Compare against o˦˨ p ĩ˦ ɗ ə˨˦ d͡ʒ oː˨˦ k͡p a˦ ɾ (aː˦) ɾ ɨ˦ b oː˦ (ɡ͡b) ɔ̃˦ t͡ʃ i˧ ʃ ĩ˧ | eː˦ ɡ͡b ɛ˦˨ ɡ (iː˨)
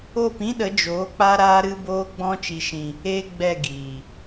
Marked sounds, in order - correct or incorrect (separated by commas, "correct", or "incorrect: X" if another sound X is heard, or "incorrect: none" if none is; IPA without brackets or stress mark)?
correct, correct, correct